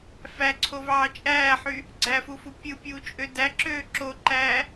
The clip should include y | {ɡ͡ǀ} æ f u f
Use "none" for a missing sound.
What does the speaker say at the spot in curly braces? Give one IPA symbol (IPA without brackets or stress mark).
ɡ͡ǀ